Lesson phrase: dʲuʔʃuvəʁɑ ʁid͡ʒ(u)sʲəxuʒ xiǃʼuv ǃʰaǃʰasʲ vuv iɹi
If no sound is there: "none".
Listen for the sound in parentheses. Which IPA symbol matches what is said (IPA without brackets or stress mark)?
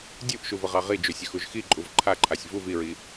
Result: u